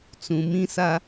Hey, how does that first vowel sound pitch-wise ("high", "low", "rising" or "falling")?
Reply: low